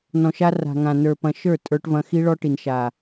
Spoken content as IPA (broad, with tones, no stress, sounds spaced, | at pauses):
n ɔ̃˨ ʃ a˧ r a̤˨ ŋ ã˨ n ə˞˨ p ɐ̃˨ ʃ ə˞˦˨ tʼ ə˞˧ ʈ v ɐ̃˧ x i˧ ɭ ɔ˧ ʈ i˨ n ʃ a˨